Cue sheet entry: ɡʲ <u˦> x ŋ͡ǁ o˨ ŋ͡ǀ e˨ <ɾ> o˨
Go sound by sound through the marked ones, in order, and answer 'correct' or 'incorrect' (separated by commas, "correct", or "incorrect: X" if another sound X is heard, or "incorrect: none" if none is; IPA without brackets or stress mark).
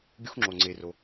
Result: correct, incorrect: r